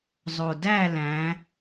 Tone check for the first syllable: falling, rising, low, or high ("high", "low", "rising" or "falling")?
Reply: low